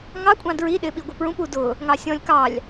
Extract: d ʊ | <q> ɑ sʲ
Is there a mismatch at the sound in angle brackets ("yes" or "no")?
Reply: yes